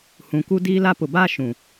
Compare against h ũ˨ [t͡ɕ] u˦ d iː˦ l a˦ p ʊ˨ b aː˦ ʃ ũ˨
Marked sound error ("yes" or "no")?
yes